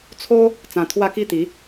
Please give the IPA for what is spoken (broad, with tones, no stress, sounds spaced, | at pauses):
t͡sʰ o˦ | t͡s ã˧ t̪ʰ w a˦ k i˥˧ t̪ i˨˦